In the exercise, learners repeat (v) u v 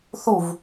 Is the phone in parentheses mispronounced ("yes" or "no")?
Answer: yes